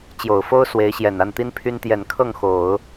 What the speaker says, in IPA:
t͡ɕjo˨˩ʊ̯fo˥ʊ̯ swe˧˥ɪ̯ɕjɛ˨˩n a˥˩nt̪i˥npʰy˥n t̪jɛ˨˩nkʰɤ˥˩ŋ xo˨˩˦ʊ̯

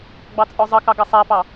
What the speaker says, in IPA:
ɡ͡bɑt͡sʼɔzˤʌkɑ ɡʌsˤæpɑ

